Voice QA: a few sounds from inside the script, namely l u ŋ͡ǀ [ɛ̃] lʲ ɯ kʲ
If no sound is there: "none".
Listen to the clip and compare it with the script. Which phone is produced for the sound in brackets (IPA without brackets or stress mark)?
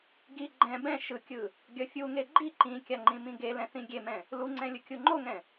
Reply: ɛ̃